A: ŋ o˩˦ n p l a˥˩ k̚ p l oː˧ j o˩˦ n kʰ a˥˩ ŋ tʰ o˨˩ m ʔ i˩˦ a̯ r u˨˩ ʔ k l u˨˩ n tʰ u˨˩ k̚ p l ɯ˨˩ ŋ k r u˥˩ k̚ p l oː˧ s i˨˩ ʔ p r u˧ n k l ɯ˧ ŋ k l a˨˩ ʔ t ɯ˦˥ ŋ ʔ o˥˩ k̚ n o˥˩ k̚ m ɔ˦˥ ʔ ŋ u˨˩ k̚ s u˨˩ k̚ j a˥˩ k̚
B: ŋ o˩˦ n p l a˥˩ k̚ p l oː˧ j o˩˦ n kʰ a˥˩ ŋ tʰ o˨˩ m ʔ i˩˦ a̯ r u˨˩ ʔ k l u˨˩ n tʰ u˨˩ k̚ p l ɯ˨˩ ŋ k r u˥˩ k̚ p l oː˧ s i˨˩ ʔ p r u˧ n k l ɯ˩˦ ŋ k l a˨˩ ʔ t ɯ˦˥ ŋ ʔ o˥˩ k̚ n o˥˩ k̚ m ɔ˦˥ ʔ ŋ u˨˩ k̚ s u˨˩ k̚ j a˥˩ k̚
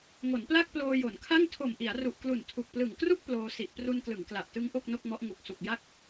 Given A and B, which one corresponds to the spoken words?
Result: B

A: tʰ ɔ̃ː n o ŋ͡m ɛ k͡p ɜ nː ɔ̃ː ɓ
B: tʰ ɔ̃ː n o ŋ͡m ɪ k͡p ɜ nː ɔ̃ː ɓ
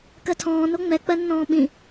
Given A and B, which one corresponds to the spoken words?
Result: A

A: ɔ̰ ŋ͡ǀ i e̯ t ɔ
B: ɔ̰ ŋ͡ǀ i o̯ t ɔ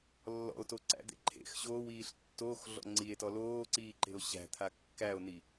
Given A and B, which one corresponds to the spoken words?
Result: A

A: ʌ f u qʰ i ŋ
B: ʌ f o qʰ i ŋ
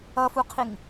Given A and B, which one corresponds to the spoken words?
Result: A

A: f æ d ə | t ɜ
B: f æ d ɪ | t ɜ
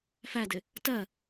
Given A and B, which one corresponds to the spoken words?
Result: B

